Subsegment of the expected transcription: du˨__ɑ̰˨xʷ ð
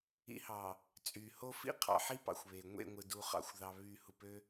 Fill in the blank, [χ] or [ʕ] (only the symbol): χ